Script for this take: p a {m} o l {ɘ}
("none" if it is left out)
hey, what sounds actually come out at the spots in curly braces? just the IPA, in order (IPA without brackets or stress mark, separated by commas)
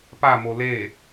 m, e